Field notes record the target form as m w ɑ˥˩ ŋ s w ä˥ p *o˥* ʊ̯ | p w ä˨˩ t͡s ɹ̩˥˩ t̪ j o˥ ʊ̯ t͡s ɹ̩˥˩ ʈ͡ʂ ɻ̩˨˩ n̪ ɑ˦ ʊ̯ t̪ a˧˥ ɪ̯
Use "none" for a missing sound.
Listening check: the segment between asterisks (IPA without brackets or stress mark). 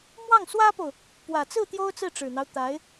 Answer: o˨